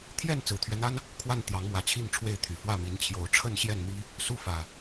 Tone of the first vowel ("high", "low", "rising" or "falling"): falling